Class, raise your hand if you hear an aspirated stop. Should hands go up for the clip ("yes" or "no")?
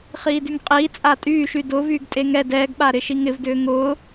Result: no